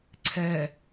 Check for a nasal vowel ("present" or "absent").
absent